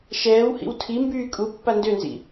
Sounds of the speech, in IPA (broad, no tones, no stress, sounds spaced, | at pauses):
ʃ ɛː w h ḭ w tʰ i m b yː kʼ u pː a n d ø n z ḭ